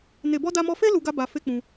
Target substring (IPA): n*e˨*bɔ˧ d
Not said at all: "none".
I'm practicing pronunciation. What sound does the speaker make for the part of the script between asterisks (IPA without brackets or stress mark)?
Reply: e˨